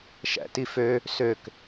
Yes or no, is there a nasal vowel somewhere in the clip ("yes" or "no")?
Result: no